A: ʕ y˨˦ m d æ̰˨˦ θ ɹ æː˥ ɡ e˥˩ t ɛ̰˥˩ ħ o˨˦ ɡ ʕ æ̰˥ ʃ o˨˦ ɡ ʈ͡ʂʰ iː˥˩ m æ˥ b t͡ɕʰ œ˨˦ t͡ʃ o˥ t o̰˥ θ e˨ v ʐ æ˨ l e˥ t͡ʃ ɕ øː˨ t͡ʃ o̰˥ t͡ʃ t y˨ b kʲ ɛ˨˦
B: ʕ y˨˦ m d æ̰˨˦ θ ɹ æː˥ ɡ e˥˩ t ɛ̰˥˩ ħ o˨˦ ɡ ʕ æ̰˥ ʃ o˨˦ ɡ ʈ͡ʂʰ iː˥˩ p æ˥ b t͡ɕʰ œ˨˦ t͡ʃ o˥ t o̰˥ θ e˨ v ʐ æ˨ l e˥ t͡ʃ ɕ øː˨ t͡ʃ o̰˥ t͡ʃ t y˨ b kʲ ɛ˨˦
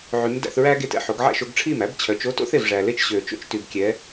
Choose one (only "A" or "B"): A